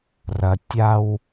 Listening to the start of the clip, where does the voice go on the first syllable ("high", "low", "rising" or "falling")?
low